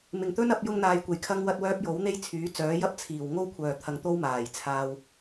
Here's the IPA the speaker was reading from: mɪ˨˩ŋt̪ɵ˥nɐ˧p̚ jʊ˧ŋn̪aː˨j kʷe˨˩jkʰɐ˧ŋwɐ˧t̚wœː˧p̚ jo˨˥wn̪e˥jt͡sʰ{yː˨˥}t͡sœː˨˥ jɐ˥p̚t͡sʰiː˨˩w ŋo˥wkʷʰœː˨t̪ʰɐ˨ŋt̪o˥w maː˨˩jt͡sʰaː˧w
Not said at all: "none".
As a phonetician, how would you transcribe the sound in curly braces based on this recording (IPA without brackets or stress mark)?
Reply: yː˨˥